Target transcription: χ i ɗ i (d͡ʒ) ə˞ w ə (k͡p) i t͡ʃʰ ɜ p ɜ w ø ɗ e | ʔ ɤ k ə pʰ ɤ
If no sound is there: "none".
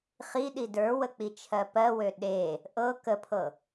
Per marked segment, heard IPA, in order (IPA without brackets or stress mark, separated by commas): d, k͡p